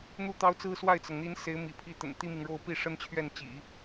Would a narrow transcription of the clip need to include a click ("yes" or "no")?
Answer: no